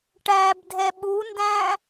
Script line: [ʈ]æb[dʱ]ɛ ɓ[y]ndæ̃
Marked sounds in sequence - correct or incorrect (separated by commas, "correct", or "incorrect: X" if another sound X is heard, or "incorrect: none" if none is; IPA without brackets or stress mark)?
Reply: correct, correct, incorrect: u